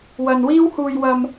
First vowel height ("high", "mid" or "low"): low